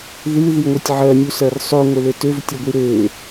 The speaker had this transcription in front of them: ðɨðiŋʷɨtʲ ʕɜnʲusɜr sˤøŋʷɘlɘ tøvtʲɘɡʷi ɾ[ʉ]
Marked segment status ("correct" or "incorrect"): incorrect